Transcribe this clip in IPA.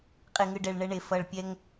qʼe˨ŋɯ˨ ɖɛ˨ɭ ɳɛ˦ɳe˨ fʌ˨ɭpʲɛ˦ŋ

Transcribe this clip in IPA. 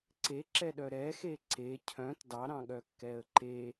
ǀeǁɛɗœ ɾɛxe ǀe cʰœ̃t dɑɾɑ̃ɠœkːɛə̯ ǃe

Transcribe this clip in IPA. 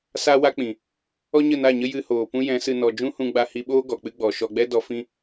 sa˦wa˦k͡pĩ˨ | ɔ˦ɲə˦˨na˦˨ɲə˦ jɨ˧hoː˨ pũ˦jɛ̃˨˦sɨ˧ nɔ˨d͡ʒũ˦hũ˧ ɡ͡ba˧hi˧ɓoː˦ ɡɔ˨k͡pɨ˦ɡ͡bɔ˨ ʃɔ˧ɡ͡bɛ˦dɔ˧ fĩ˦

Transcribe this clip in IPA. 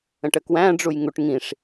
ə̃ʈəkwæ̃ ɖ͡ʐujŋuʈ ŋĩʂ

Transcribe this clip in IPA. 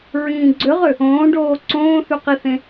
ɹĩːɡ͡ǀøʁø | õːɖoː ǀõːθyqiθẽ

